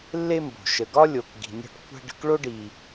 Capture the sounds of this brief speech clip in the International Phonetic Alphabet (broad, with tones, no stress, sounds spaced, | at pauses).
lː e˥ m b o̤˩ ʃ ə˨ ɡ ɒ˥ lʲ o˨ k ɡ i̤˨ nʲ ɔ̤˦ ʈ kʷʰ æ̤˥ ɖ ə̤˦ k ɭ o˥ ɖ i˨